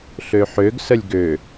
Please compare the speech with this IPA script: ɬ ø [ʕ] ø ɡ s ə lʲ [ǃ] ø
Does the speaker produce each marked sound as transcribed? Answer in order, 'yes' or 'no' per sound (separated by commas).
no, no